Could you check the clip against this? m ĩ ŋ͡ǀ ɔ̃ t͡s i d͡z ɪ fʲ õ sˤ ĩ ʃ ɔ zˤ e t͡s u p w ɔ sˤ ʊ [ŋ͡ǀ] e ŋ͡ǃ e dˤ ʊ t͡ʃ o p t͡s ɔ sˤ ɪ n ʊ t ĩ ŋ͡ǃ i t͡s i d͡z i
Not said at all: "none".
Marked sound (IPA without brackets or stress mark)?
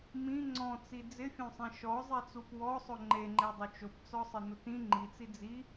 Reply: ŋ͡ǃ